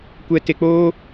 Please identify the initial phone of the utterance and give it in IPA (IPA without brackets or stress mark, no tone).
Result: kʷ